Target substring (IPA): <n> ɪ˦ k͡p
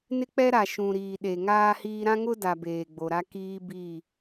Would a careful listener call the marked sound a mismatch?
no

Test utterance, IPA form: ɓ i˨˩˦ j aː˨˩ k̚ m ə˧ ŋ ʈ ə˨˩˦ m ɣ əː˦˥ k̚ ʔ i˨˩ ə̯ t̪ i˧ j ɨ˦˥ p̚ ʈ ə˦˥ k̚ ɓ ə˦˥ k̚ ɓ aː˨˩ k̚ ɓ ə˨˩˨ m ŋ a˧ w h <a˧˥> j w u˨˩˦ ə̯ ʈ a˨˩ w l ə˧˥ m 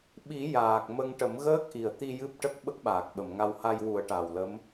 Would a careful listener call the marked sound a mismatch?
yes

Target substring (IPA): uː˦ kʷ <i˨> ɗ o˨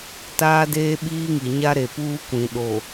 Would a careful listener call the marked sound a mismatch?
yes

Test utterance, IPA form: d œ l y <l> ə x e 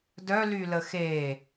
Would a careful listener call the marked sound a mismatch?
no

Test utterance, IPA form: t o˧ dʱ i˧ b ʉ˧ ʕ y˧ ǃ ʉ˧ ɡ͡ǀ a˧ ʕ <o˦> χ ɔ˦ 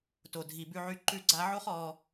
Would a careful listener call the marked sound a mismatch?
no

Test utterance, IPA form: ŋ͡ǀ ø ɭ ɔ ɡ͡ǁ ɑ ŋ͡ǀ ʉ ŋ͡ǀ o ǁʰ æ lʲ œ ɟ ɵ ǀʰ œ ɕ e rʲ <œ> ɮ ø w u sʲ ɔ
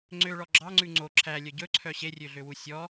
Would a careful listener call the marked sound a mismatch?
yes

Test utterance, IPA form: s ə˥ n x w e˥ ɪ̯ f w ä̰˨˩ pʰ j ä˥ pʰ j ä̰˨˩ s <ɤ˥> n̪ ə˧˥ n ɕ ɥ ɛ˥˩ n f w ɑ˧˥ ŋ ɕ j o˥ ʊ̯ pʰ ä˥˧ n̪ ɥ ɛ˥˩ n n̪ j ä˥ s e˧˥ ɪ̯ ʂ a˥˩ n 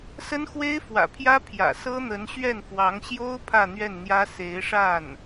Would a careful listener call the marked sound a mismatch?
no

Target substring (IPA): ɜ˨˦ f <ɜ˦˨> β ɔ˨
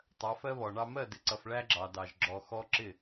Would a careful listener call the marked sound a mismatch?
yes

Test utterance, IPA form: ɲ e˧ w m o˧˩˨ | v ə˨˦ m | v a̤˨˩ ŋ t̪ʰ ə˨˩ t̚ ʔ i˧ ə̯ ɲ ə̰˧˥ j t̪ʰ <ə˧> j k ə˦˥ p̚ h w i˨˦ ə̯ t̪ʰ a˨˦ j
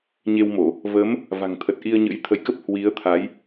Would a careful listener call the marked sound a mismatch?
no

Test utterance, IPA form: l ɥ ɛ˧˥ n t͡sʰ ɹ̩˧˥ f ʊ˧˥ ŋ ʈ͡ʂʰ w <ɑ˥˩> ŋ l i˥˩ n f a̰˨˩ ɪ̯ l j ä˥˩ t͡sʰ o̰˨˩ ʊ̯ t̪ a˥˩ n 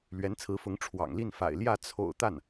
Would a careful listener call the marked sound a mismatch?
yes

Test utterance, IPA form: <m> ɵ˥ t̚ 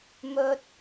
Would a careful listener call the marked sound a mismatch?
no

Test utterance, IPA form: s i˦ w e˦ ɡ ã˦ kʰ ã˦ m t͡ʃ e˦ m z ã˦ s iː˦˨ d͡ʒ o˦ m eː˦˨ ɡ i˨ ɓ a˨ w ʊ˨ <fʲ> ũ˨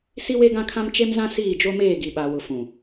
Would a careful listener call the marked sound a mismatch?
yes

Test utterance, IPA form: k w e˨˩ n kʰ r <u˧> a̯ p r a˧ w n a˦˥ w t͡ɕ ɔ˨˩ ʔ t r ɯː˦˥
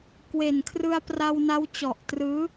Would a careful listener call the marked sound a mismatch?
yes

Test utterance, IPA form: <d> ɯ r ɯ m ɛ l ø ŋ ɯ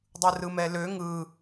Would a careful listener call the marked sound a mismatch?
yes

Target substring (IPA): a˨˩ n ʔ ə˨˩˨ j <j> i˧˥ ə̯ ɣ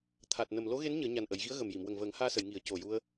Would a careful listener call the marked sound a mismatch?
yes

